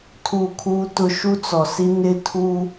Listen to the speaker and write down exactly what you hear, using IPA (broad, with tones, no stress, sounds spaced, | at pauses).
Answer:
tʰ uː˦˨ kʰ uː˦ t ʊ˦ ʃ u˦ t͡s ɔ˨ s i˦ n ɪ˦ tʰ uː˦